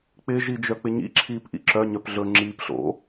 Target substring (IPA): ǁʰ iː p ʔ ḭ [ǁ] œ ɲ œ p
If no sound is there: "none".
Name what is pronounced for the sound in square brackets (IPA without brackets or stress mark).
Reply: ǁ